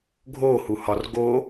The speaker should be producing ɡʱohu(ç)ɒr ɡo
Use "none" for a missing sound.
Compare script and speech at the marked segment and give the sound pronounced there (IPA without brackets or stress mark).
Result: h